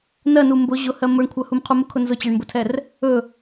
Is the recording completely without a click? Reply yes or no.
yes